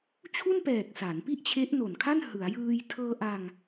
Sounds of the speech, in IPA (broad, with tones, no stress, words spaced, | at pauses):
t͡ɕʰu˥˩npɛː˨˩k̚ sa˩˦npi˥˩ʔt͡ɕʰe˦˥ʔ no˨˩nkʰa˥˩n hɯ˩˦a̯jɯː˧j tʰɤː˧ʔa˧ŋ